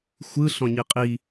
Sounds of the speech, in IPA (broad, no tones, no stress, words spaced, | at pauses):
xʷɯ ɬɔ̃ɲiqʼi